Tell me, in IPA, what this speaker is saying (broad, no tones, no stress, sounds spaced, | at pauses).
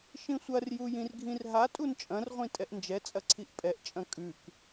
ʃ ĩ sʷ ɐ r j u j ĩ r ɡʱ ĩ r ɦ a tʼ u n t͡ʃʼ ɐ̃ r ʁʷ ĩ tʼ ɛ ʔ n d͡ʒ ɛ t͡sʼ ɐ ǀʰ i ʔ pʼ ɛ ʔ t͡ʃʼ ɐ̃ kʼ ʉ k